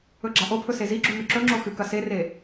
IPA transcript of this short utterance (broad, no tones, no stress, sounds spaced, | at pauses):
ɵ ɡ͡ǁ a ʔ o pʰ ɵ s e z i ɡ͡ǁ u ŋ ʉ ǁ ɵ ŋ͡ǁ o x ɨ k ɐ s e r e